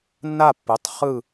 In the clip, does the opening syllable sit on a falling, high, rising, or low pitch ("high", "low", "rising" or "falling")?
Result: falling